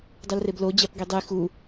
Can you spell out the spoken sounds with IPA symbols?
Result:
dˤulreblo d͡ʑæpɡidˤi xu

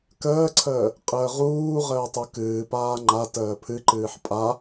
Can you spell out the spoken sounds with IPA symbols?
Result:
kəːǀʰəː | qʼəːʁuːʁəː tˤukɨːpaː ŋ͡ǃa təːpʰɨǃɨːħ pʼa

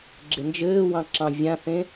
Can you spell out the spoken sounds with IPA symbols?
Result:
ɡ͡ǁɪnd͡ʒɘːwɑ̃ ǁɑ̃vʲãθẽ

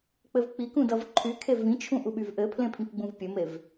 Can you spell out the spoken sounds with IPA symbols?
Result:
k͡pɘvk͡pikũ dʌvǃʰykʰe vĩt͡ʃʰũ ʔuɓyvʔɘpʰlẽ pʰĩkɡ͡bũvpʲɘmev

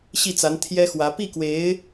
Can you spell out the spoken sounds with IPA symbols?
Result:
ɕi˥˩t͡sa˧˥n t̪ʰjɛ˥xwä˧˥ pi˥˩kwe˧˥ɪ̯

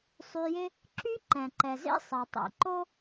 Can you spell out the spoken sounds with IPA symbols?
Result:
sˤy˨jɪ˦ | ǁy˦ǃɛ̃˩ǃɛ˩zḛ˦ sˤɛ˩tˤḛ˨ǃo˥

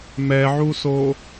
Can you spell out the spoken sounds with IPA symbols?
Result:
mɛʕuso

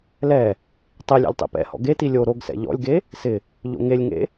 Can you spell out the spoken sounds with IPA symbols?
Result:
lɛ | tˤilʲḛlʲ tˤḭpɛ̰hɔ̰ ɡeti lʲo ɾoɡsɛ̰ ʎɔ̰lʲɡe | sɪ | ʎo̰ŋelʲŋḛ

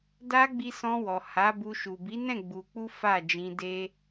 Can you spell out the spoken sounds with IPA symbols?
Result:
da˧ ɡ͡bi˧sɔ̃˧wɔ˨ ha˨˦bu˧ ʃu˨bi˨˦nɛ̃˦˨ ɡ͡bu˧ k͡pu˦fa˦˨ d͡ʒĩ˧ de˦

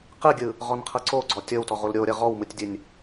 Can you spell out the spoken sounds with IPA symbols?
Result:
qɯɡʲɯ | ʁɔnqʰɤǀo ɡ͡ǀɔtʲɤwtɔʁ olɾʲoɾʲɤ ʁɔwmɯtʲdʲɯnʲ

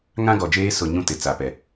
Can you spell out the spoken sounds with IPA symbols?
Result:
ŋã˦ɡɔ˨d͡ʒeː˦ sʊ˨ ɲũ˦tɪ˨ t͡sa˨pɛ˨

